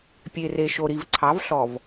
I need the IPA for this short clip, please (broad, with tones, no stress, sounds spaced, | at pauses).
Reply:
pʲ e˨ r e˨ ʃ o˨ ɾ i˨ v ǀʰ ɑ˨˦ v ɬ ɔ˨ v